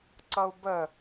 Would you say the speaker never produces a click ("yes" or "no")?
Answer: no